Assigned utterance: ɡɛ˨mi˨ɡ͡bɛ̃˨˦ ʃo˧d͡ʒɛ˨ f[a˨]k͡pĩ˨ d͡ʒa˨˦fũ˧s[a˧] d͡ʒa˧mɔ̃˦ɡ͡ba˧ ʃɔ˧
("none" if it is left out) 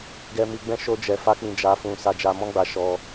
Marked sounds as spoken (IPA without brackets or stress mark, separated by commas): a˧, a˧